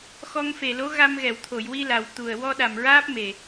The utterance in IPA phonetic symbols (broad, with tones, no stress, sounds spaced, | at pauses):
x ɔ˧ ŋ f e˨˩ l o˧˥ ɣ a˧ m ɣ ɛ˨˩˨ w t̪ʰ o˨˩˨ j w i˧ l a˨˩ w t̪ u˨˩ ə̯ w ɔ˧ ɗ a˨˩ m ɹ aː˦˥ p̚ m e˨˩